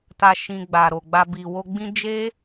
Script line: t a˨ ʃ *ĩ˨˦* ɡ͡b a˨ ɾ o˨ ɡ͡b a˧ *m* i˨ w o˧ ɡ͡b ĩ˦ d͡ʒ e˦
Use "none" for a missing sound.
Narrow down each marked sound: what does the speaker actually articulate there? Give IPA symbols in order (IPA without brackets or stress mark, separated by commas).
ĩ˨, b